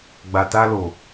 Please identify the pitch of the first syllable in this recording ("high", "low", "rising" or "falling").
low